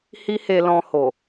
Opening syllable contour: high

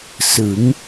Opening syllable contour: rising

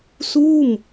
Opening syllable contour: falling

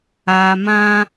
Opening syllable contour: low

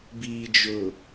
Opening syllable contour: low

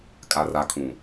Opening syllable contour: low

